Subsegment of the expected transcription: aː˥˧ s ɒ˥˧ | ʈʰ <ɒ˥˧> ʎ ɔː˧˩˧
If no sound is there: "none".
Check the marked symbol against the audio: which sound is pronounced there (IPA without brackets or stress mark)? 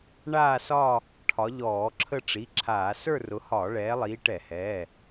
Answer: ɒ˨˦